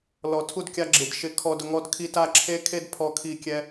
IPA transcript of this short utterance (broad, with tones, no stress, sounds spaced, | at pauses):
l ɔ˨ tʰ u˦˨ d kʲ a˧ ɡ͡ǁ ɪ˨ d ʃ ɪ˧ kʰ ɔ˧ d ʊ˧ ŋ ɔ˧ d kʰ i˧ t a˦˨ ǁʰ e˦ kʰ e˦ d pʰ ɔ˦ kʰ i˦˨ kʲ ɛ˧